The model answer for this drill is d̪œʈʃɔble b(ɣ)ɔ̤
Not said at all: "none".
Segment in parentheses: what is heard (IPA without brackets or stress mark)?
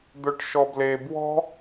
w